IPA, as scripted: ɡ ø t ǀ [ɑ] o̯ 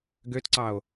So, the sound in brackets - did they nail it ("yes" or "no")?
yes